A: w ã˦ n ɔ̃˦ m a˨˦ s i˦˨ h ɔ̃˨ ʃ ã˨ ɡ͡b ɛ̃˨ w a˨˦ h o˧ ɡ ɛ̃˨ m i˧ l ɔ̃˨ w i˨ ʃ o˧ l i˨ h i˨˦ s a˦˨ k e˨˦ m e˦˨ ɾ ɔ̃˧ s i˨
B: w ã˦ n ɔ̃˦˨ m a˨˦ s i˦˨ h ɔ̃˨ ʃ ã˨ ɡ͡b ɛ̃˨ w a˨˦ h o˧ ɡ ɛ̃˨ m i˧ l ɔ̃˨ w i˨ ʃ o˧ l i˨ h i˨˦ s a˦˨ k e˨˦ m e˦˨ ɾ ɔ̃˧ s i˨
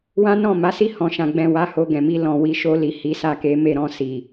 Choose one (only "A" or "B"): B